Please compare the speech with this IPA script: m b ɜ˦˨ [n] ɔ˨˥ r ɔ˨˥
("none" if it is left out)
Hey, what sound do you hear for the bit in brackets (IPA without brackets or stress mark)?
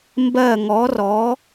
ŋ